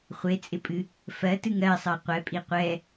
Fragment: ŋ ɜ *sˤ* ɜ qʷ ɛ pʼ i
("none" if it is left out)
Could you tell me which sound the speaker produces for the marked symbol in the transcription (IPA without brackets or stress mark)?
sˤ